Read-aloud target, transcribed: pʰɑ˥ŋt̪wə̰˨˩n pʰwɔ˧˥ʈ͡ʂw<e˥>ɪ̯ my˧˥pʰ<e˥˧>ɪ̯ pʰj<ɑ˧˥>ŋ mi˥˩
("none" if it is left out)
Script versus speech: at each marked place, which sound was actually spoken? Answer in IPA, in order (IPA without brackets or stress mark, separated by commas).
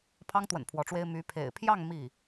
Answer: e˥, ḛ˨˩, ɑ˥˧